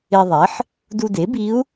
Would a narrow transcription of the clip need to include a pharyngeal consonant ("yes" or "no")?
yes